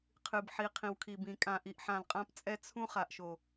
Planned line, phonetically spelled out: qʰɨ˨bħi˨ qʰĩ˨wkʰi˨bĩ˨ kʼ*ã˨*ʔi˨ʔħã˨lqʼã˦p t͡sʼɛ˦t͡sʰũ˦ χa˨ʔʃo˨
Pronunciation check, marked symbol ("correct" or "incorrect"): correct